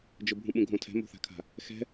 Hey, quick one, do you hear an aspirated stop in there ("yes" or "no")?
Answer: yes